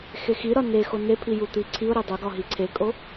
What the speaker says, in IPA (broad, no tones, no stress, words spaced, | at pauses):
xexiɾɒ ne xonepʰi jut̪iǀʰiʊ̯ɾe dˤoɡɒ ɦiǀʰekʼo